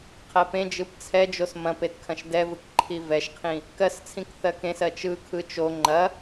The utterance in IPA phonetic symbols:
qʰ ɜ p ẽ d͡ʒ ɯ p t͡sʰ ɛ d͡ʒ o s m ɐ̃ p e t kʰ ɐ̃ ʃ d ɛ v ɯ k ǃʰ i v ɛ ʃ qʰ ĩ | k ɜ s t͡sʰ ĩ k θ ɜ k ẽ s ɜ t͡ʃ ɯ kʰ ɯ t͡ʃ o ŋ͡ǃ ɐ

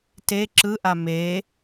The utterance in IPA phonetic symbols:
t e ǁ ɯ ʔ a m e

